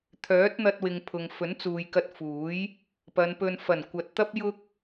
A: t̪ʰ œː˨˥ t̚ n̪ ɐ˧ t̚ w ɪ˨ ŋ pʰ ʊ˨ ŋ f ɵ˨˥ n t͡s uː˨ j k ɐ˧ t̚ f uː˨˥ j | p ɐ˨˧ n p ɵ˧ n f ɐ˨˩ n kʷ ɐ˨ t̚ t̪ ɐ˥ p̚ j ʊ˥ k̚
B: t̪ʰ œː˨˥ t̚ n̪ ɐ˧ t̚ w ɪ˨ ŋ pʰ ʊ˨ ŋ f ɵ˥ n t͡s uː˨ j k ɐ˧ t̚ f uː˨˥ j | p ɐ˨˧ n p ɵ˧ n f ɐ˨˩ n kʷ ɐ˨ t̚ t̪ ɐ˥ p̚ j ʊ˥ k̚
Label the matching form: A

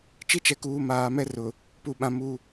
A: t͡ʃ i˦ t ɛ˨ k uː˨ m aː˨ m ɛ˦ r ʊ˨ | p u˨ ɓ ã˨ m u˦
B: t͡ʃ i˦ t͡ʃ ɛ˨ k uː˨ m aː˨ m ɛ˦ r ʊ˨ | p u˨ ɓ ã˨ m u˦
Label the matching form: B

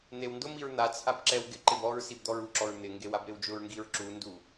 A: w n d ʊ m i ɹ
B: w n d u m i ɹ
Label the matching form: A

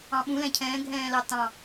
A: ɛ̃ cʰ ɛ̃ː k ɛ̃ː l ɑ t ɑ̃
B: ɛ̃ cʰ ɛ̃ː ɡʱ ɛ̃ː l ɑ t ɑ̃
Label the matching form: B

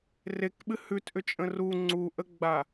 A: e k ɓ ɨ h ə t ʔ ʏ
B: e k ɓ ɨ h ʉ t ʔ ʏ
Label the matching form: B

